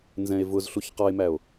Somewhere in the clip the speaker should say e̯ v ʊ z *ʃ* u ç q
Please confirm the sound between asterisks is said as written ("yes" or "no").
no